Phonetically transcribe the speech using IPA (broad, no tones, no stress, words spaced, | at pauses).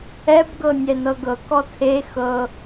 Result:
ɛbɡɤ nʲɛnɤɡɤ kɔtʰe xɤ